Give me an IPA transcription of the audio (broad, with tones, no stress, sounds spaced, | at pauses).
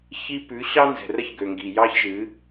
ç i˦ p ʉ˨˦ ɕ ɑ˦ n z ɛ̤˨ r ə˦ ç ɡ ø˨ ŋ ɡ i˨ j ɑ˦ ç ʒ ɨ˨˦